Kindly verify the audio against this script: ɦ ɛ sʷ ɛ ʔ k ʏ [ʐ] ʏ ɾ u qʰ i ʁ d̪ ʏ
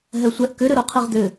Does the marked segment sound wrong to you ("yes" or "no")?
yes